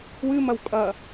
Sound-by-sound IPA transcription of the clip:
w ɨ m ɐ w kʼ ɐ

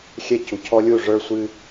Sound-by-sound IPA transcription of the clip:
xʲ ɛ˦ c u˩ cʰ ɔ˦ lʲ u˦˨ ʐ ə˞˦ sʷ ɨ˦

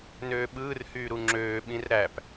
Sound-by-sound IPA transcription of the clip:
n øː ɓ ɯː r h yː ɾ u ŋ͡ǁ øː ɓ ĩ r ɾ æ p

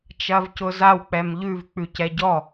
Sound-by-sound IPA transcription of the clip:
t͡ʃ ɐ v c ʊ z a w k͡p ɛ m ʎ ʉ v k͡p ʉ c ɛ ɟ ɔ

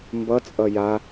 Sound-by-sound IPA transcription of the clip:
m b ʌ t͡sʼ ʌ j a

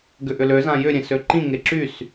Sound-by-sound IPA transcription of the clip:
ɡ ʏ ʔ ʏ l ø z ã j ʏ ɾʲ ẽ s ø ǃ ĩ ŋ e ǁ y s

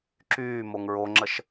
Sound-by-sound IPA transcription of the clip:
ǁ yː m o ŋ ɹ o ŋ͡ǁ ə ʃ

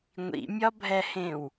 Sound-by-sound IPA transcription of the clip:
ŋʷ ḭ mʲ ɒ bʱ ɛ h ẽ w

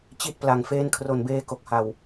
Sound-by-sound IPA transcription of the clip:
t͡ɕ i˦˥ t̚ p l a˨˩ ŋ f eː˦˥ n kʰ r o˨˩ n b eː˧ k o˨˩ k̚ h a˨˩ w

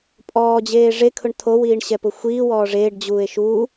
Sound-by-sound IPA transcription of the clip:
pʼ ɔː d͡ʑ eː ʐ e kʰ ʊ ɳ t̪ʰ o w iː ɳ ɕ ɛ p ʊ xʷ iː w ɔː ʐ eː ɖ d͡ʑ uː e̯ ʃ u

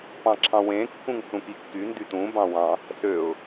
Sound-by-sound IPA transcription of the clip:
p ɑ̃ ǁʰ ɑ̃ w ẽ kː ũ ŋ s ũ k i kː y n d y t ũ b ɑ̃ w ɑ̃ | s ø ʊ̯

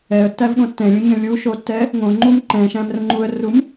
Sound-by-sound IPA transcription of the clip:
ɛ ə̯ tː æ v ɠ õ tː ɛ̃ lʲ ũ ɲ ə̃ lʲ u ʃ o tː ɛ | ŋ õ ŋ͡ǃ u m ǃ ɛ̃ ʃ æ̃ m r ə̃ ŋ͡ǃ u ə̯ r u m

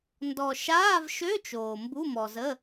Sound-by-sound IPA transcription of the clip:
n d ɔ˨ ʃ aː˧˥˧ v ʃ ø˧˥˧ t͡ʃ oː˨ m b u˧˥˧ m ɔ˨ z ə˧˥˧

